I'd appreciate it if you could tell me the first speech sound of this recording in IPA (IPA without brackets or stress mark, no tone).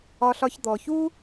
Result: ɒ